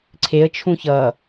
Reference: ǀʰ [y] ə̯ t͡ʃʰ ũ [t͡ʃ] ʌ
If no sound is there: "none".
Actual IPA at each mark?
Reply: e, ç

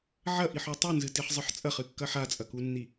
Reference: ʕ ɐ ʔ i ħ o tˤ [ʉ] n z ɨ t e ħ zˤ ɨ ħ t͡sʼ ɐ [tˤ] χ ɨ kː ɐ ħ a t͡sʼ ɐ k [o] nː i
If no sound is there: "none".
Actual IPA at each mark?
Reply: ʉ, none, u

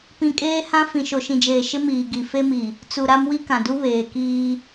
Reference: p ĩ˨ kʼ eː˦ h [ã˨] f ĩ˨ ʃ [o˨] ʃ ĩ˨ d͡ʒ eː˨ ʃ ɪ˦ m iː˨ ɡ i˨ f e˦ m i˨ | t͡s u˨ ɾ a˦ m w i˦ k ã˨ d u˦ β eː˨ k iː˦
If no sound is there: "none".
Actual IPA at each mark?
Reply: ã˦, o˨

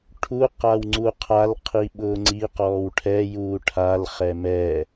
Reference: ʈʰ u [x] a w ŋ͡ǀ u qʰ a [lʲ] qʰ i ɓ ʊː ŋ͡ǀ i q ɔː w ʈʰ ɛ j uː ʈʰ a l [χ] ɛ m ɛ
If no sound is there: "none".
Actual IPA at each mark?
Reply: q, l, χ

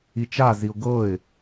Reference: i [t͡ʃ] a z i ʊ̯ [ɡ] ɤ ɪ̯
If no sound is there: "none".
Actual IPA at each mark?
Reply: t͡ʃ, ɡ

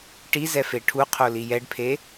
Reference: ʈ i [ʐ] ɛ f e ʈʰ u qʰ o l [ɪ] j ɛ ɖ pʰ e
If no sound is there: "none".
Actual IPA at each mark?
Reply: z, i

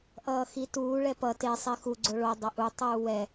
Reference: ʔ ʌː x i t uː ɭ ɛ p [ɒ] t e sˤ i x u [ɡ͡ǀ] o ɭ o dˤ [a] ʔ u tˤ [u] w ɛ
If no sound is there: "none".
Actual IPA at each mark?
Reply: ʌ, ɡ͡ǀ, ʌ, uː

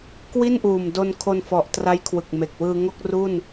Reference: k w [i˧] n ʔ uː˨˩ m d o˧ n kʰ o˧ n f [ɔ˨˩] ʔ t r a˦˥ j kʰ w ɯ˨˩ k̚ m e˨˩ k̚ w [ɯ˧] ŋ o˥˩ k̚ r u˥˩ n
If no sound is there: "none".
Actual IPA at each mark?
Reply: i˥˩, ɔ˨˩, ɯː˧

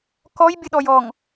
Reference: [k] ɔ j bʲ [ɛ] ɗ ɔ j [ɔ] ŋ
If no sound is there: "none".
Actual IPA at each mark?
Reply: k, ə, ɔ

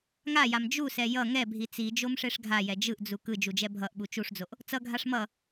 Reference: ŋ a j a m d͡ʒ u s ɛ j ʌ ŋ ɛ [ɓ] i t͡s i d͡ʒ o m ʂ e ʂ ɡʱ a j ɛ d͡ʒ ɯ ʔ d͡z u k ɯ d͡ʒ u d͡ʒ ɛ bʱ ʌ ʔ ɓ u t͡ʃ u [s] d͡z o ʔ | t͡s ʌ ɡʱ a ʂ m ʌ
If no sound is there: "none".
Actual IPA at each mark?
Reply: bʱ, ʂ

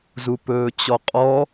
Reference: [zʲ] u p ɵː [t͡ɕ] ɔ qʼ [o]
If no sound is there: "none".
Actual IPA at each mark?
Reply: z, t͡ɕ, ɔ

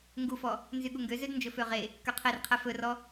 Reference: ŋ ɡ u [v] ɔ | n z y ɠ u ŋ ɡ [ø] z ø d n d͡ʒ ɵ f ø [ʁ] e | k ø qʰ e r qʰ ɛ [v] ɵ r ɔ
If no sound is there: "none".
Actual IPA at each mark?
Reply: f, ø, ʁ, f

